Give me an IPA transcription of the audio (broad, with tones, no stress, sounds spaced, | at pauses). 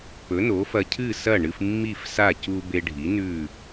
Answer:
p ɵ˩˥ n o˩˥ f ɐ˧ cʰ ɨ˥˩ s ɐ˥˩ ɳ ɨ˧ f mː i˥˩ f s a˥˩ c u˧ b e˧ ɖʱ i˩˥ n ʉ˥˩